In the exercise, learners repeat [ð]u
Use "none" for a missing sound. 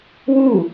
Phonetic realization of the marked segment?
w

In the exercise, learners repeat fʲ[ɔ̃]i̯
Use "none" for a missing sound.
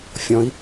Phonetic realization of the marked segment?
ɔ̃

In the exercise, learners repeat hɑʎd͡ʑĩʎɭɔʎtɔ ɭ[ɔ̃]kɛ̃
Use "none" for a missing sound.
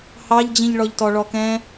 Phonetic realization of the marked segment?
ɔ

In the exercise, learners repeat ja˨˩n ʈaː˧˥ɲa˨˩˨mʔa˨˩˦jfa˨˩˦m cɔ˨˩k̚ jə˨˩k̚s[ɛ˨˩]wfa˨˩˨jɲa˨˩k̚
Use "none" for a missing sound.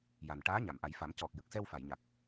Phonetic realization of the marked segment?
ɛ˧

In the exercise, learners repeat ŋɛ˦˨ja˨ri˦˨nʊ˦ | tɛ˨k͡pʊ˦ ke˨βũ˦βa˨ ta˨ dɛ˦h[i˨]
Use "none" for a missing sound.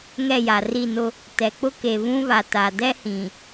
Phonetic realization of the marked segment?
ĩ˨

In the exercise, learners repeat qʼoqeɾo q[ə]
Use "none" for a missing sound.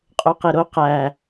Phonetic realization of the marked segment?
æ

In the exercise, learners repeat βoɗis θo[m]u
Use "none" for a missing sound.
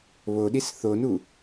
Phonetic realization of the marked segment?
n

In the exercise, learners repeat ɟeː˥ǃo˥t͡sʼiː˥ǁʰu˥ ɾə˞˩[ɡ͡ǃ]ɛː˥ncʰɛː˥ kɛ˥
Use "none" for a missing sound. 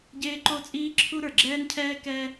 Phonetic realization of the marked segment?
ɡ͡ǁ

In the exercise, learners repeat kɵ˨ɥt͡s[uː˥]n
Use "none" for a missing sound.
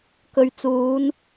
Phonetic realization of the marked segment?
uː˨˧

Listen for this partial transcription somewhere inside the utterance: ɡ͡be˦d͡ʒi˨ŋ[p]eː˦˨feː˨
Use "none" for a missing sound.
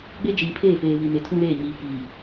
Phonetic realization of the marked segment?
pʰ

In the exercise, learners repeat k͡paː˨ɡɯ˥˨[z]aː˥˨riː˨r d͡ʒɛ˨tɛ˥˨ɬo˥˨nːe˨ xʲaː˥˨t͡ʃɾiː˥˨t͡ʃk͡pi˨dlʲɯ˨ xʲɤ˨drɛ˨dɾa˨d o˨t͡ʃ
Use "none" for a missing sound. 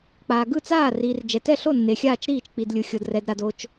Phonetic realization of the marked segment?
t͡s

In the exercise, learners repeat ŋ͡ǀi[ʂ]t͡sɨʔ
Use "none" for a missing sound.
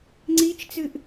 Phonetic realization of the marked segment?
t͡ʃ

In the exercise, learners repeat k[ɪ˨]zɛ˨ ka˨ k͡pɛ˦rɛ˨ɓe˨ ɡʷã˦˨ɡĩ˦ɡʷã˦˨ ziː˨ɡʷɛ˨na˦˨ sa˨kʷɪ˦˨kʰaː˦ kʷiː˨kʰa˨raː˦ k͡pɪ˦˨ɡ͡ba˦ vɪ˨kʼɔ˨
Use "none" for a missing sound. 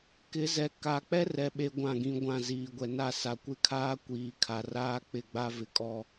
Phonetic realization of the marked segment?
ɪ˨˦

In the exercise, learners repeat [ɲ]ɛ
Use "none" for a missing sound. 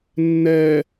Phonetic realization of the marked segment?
nː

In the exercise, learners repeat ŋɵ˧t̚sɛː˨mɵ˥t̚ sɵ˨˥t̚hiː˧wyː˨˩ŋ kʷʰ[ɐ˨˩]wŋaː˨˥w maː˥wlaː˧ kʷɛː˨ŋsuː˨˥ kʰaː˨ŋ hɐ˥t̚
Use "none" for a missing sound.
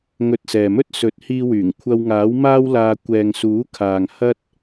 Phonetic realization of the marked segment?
ɐ˧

